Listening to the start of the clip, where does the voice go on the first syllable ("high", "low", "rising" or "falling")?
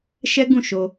high